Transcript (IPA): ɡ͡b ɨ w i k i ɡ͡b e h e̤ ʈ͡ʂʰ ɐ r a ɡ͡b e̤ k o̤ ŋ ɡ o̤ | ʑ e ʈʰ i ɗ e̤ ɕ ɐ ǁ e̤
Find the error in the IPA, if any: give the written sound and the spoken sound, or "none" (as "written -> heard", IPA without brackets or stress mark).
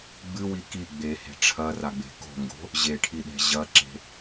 ɕ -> ʑ